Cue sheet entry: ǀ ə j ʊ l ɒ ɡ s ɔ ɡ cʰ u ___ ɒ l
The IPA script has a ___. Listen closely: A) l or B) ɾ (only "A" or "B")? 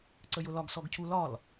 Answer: A